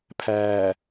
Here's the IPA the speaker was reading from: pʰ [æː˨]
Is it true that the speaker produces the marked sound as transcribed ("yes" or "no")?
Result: yes